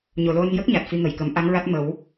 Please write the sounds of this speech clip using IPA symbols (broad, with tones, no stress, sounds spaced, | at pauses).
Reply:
ɲ o˨˩ l o˧ n j ə˦˥ k̚ ɲ a˨˩ t̚ f i˧ ŋ ə˨˩˨ j k ə˨˩˦ m ʔ a˧˥ ŋ ɹ a˦˥ t̚ m ə˨˩˦ w